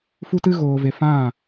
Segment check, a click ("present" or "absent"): absent